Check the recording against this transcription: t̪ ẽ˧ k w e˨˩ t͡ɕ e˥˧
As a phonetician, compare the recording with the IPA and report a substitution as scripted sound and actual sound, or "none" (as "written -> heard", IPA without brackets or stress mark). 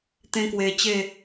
none